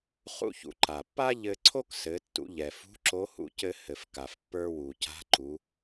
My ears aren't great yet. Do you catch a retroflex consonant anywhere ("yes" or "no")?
no